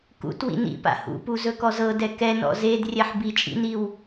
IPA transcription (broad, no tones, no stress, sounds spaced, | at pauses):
k ṵ t w ḭ n ḭ p a̰ h ṵ p u z ɵ k ɔ z ɤ d ɛ k ɛ n ɔ̰ z e d rʲ ɛ ħ b i t͡ʃʼ ḭ n i w